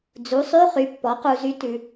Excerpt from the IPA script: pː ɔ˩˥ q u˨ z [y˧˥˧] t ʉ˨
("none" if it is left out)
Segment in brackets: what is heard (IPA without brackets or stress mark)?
y˧˥